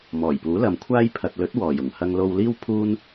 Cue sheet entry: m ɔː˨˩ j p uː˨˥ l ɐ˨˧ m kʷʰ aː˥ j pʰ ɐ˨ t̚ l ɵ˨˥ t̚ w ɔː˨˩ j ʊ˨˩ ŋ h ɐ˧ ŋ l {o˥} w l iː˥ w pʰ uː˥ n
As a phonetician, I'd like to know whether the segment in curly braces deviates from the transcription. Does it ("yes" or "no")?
yes